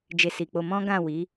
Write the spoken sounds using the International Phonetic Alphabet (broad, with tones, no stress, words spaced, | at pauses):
d͡ʒe˧si˨k͡po˧ mɔ̃˦ɡã˦˨wi˨˦